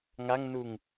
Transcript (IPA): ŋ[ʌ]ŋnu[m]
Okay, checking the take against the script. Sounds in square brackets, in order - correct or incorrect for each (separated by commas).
incorrect, incorrect